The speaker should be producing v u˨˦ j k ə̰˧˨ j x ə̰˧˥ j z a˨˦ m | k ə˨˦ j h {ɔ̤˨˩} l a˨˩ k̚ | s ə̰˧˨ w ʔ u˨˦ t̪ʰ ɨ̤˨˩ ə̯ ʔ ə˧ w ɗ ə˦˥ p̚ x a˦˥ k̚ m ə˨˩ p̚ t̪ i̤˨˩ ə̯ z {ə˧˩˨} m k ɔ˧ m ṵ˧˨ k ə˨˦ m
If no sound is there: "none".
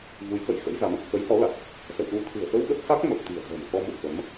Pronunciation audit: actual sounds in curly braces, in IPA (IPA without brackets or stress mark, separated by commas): ɔ˨˦, ə̤˨˩